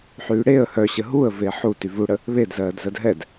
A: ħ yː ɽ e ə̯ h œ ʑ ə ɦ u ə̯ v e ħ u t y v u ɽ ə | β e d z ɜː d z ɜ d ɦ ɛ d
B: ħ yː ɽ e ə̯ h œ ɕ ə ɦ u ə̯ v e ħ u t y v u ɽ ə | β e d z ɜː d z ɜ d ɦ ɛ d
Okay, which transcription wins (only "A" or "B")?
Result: B